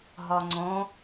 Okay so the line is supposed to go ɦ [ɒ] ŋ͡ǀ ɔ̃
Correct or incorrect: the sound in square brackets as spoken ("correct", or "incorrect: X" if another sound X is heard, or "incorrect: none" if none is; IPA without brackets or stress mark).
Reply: correct